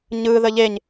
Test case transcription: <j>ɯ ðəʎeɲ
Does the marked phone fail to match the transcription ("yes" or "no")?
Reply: yes